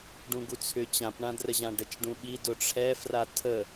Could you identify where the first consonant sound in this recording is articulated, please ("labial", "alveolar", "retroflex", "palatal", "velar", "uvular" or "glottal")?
retroflex